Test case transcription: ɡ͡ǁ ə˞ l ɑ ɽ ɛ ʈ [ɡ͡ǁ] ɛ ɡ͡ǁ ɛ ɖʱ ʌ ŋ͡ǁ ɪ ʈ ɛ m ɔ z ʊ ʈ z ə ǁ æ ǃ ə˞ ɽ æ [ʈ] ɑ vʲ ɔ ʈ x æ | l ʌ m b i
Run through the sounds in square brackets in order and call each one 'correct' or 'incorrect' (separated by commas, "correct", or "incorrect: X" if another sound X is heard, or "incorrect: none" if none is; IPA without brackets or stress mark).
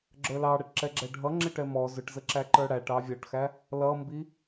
incorrect: ǁ, correct